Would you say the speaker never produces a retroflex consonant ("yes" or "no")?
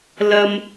yes